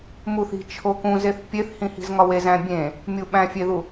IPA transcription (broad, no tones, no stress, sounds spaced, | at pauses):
m u θ i̤ t͡ʃʰ o k ũ z e θ pʲ e θ h ĩ h i̤ z ŋ ɒ w e z æ̃ bʲ ẽ | mʲ u ɓ æ̃ fʲ e ð u